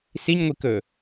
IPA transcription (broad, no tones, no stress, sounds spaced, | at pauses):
s i ɲ ŋʷ i k ɵ